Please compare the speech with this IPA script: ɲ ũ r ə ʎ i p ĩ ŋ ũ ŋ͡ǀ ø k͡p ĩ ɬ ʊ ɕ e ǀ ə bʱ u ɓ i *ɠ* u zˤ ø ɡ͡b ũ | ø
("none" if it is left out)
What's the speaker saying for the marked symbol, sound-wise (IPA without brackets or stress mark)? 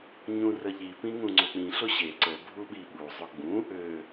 ɓ